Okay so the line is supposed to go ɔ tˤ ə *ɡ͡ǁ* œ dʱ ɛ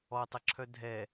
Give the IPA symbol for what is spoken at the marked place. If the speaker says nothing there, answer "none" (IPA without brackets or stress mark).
ǁʰ